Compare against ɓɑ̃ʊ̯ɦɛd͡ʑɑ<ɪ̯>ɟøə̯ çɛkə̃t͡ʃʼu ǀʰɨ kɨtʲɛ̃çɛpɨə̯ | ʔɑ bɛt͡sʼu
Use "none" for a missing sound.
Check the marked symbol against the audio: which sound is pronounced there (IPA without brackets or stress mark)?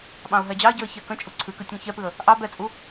ɪ̯